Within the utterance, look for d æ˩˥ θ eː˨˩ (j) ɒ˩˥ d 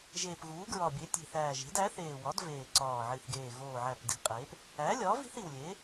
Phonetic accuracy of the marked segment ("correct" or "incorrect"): incorrect